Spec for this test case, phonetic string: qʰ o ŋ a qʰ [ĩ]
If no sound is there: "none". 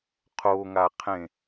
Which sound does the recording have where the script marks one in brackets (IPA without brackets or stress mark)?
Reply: ẽ